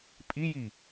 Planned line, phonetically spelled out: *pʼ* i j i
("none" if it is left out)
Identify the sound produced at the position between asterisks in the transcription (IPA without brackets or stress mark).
pʼ